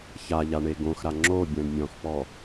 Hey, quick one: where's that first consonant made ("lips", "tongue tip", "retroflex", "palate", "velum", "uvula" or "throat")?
palate